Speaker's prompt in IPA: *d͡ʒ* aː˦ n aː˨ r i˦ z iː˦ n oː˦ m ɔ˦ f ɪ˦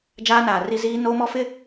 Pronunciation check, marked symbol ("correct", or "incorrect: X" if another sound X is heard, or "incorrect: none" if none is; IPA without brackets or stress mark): correct